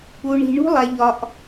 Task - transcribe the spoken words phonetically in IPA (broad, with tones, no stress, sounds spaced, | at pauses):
u˧ ɳ i̤˧ ɳ ṳ˦ lˠ æ˧ ʎ ɒ˧ ʔ